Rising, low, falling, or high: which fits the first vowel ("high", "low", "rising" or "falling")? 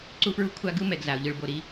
high